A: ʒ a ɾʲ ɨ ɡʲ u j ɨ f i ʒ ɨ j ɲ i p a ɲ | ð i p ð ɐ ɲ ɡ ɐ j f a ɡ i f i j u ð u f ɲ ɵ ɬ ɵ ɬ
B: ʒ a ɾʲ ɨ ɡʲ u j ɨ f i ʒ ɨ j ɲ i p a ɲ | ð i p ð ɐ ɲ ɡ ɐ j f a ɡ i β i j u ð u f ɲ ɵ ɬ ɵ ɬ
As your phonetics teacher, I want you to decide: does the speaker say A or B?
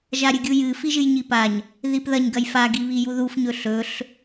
B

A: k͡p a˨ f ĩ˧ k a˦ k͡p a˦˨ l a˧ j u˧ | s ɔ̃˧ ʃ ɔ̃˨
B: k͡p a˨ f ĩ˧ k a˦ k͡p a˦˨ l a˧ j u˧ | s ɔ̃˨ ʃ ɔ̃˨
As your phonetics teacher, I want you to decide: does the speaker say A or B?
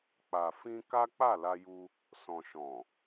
B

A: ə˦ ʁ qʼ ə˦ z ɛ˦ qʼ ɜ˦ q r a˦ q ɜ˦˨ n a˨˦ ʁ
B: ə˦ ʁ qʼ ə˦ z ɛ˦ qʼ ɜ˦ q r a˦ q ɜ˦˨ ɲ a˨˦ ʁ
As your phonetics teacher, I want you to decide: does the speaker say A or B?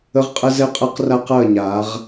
B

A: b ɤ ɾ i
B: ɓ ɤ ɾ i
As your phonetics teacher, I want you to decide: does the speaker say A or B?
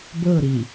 A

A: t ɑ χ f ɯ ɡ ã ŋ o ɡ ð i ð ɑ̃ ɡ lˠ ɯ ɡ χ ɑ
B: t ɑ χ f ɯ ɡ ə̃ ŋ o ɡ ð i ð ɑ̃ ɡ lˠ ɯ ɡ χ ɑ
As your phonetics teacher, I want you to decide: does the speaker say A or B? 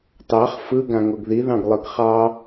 A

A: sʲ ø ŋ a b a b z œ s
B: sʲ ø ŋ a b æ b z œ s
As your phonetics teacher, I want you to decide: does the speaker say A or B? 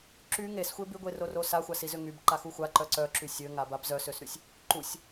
A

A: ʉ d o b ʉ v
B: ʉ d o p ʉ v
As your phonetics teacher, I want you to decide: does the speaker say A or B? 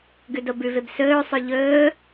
A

